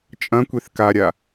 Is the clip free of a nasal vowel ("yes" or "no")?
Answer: no